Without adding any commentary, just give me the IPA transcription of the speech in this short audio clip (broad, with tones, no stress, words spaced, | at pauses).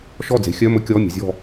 ʃɔ˥˩d͡ze̤˨˥xʲœ˧˥˧ mɵ˦˥kʲɔː˧˥˧mʲɛ̤˨˥ zʲɔ̤˥˧